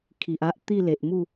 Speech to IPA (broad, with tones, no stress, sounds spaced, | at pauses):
kʰ i˨ ʔ a˦ ʔ t̪ i˥˧ l e˨ ʔ m u˥˧